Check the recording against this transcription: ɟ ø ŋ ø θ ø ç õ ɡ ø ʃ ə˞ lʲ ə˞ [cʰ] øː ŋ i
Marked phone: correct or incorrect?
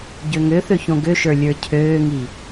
correct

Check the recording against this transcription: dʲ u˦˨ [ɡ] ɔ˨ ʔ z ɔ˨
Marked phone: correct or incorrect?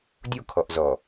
incorrect: kʰ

